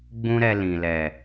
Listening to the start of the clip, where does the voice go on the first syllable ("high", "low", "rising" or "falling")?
high